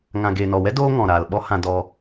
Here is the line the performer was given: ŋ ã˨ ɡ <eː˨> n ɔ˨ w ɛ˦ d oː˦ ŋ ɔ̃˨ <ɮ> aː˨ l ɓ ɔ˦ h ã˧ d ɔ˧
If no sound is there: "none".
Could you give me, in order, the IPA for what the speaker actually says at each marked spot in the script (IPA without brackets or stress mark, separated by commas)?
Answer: eː˨, ɾ